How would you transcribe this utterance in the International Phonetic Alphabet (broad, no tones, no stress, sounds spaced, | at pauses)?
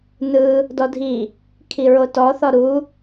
n ɯ | d ɔ dʱ i | kʰ i ɹ o t ɔ θ ɔ ɾ u